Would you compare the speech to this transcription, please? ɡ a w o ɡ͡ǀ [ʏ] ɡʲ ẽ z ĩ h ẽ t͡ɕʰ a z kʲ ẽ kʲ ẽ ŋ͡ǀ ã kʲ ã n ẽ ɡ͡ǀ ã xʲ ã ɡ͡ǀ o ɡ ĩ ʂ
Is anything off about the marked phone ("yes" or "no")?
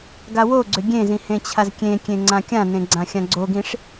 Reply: no